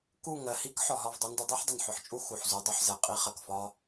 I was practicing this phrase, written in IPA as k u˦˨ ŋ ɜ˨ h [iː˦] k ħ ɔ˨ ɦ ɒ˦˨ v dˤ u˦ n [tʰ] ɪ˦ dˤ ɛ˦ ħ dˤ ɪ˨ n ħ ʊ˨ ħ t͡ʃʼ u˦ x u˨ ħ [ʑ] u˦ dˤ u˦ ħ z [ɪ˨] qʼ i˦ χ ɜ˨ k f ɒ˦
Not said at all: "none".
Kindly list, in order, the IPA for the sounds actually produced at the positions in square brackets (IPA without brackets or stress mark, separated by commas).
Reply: i˦, d, z, ɛ˨